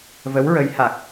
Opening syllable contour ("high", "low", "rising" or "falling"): rising